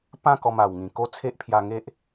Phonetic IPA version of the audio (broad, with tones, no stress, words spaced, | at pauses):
pã˥˧kɔ˧ma˨˩wŋĩ˨˩ ko˦ t͡sʰe˦ʔpʰja˧ŋe˦ʔ